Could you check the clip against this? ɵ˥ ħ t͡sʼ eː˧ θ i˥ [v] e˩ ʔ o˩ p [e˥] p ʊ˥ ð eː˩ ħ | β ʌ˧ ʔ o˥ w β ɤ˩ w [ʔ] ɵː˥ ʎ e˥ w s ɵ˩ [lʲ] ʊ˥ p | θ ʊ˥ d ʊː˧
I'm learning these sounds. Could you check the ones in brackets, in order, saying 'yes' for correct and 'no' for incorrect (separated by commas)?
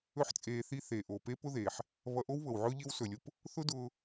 no, yes, no, yes